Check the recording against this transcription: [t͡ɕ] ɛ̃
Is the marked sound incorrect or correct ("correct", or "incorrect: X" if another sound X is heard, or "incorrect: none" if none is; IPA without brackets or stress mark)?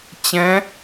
correct